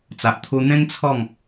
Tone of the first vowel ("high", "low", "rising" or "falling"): low